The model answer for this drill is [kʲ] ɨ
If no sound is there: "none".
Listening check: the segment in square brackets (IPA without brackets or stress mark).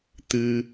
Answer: t̪